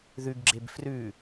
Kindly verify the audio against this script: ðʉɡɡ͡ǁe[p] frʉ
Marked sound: incorrect: b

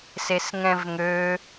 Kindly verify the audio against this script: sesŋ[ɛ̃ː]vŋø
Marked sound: incorrect: ɛ̃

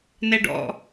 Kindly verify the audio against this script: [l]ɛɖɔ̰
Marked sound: incorrect: n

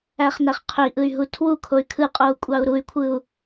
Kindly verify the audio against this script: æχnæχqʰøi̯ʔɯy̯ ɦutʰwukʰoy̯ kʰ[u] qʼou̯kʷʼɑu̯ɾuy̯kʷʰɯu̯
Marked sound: incorrect: ɯ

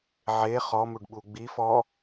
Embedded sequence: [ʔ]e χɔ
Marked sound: incorrect: ʕ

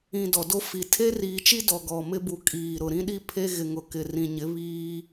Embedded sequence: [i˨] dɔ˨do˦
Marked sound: incorrect: ĩ˨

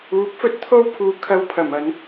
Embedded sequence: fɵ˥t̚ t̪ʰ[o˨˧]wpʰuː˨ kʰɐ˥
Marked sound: incorrect: o˥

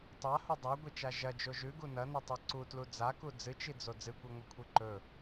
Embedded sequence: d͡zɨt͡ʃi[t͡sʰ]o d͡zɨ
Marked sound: incorrect: d͡z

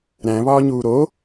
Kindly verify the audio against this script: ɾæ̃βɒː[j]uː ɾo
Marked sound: incorrect: ɲ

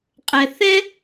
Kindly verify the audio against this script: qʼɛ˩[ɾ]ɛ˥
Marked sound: incorrect: θ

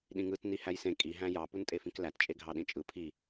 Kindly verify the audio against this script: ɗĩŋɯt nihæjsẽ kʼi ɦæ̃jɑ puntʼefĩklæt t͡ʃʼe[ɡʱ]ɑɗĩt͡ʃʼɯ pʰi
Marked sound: correct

